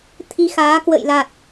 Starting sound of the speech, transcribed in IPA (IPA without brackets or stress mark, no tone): t̪ʰ